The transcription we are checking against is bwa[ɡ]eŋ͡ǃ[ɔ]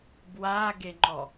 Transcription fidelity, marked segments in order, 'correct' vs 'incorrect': correct, correct

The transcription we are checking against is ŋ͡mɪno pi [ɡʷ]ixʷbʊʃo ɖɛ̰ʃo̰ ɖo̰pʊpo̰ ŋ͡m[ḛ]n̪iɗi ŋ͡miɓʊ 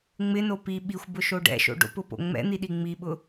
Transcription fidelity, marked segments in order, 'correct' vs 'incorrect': incorrect: ɓ, incorrect: ɛ̰

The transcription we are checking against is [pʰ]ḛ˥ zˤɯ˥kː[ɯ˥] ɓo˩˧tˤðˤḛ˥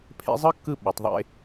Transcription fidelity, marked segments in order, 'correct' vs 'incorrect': correct, incorrect: ɯ˦˨

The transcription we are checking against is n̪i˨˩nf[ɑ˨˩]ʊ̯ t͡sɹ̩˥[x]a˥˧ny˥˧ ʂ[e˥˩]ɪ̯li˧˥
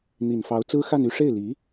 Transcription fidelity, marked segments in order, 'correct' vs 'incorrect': incorrect: ɑ˧˥, correct, correct

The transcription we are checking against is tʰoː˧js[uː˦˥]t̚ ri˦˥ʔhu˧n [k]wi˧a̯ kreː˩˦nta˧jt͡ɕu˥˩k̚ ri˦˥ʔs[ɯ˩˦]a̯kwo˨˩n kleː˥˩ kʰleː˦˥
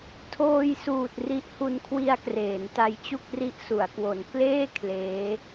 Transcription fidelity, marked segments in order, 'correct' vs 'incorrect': incorrect: uː˨˩, incorrect: kʰ, incorrect: u˩˦

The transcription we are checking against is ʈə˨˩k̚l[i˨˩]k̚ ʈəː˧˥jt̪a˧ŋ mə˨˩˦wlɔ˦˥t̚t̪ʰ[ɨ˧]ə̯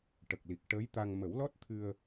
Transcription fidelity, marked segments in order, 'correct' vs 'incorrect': correct, correct

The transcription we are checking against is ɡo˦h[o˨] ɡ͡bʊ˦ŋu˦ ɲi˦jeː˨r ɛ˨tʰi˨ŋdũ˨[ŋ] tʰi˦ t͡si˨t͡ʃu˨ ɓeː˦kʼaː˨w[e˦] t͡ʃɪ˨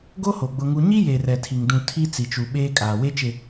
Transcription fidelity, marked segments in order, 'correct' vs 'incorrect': correct, incorrect: none, correct

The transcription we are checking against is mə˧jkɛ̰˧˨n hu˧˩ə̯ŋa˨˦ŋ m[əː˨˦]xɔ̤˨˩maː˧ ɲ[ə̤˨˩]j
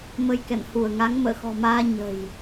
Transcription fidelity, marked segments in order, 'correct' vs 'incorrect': incorrect: ə̰ː˧˨, correct

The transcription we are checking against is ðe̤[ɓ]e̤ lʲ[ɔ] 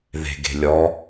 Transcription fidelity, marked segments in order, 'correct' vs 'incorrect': incorrect: ɡ, correct

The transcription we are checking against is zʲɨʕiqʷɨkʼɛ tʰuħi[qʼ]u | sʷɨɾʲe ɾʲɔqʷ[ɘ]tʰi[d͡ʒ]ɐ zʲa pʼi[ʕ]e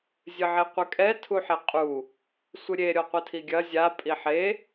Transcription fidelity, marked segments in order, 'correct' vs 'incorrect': correct, correct, incorrect: ɡʲ, incorrect: ħ

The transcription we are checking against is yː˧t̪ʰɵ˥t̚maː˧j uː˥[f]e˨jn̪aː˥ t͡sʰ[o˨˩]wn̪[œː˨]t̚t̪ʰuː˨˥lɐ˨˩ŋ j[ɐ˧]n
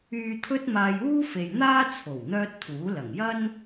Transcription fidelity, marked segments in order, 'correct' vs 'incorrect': correct, correct, incorrect: œː˥, incorrect: ɐ˥

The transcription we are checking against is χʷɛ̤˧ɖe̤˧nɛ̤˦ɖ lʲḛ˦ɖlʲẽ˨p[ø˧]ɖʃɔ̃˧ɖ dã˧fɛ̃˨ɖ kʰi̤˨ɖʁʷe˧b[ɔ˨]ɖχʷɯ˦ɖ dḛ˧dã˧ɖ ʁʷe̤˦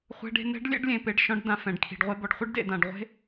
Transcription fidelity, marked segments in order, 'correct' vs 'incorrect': incorrect: e˧, correct

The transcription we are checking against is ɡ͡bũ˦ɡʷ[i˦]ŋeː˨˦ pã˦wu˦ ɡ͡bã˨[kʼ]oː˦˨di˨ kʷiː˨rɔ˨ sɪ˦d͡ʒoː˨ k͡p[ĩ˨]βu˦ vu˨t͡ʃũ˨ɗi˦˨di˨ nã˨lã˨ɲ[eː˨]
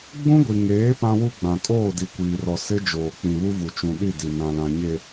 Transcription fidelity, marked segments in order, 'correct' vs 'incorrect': incorrect: i˨, correct, correct, incorrect: e˨

